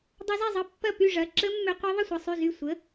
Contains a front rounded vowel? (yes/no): yes